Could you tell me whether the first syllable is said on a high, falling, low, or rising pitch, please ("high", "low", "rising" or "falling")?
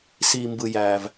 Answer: low